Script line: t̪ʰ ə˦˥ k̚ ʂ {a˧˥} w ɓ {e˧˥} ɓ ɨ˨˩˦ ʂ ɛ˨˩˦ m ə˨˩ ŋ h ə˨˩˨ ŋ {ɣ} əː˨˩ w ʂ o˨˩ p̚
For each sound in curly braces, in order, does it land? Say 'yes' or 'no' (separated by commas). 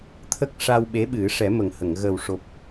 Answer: no, yes, yes